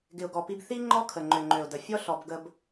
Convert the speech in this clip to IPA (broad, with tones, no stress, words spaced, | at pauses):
ɡɪ˨ʊ̯ɡɔ˨pi˦b θi˦ŋ͡ǃɔ˦ kʰə˨ŋ͡ǃø˨ŋ͡ǃø˨ʊ̯də˨ fʲɔ˦ ɬɔ˦b ɡə˦b